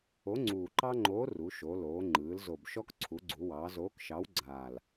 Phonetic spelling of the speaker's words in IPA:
o˨˥ŋ͡ǀuː˨˩ǃɑ˦ŋ͡ǃoː˨˥ ru˩˧ʃo˩˧loː˩˧ ŋ͡ǃɯː˩˧lzo˨˩bʃɔ˦k ǀʰu˩˧ɡ͡ǀu˩˧wɑː˩˧ zoː˨˥kʃɑ˨˥wɡ͡ǀaː˨˩l

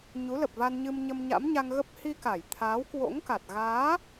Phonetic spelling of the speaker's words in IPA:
ɲu˨˦lə˨˩p̚va˧nɲɨ˧m ɲə˧mɲa̰˧˥mɲa˧ŋɣə˦˥p̚ hi˧ka˧˩j t̪ʰaː˨˦wkwo̰˧˥ŋka˨˩t̚ ɣaː˨˦

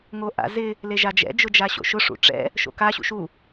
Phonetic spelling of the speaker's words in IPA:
ŋoʔa̰zɪ | leʒad͡ʒɛ̰ d͡ʒʊd͡ʒaɕo̰ʃʊ ʂṵʈ͡ʂɛ̰ | ʃo̰ka ɕṵʃu

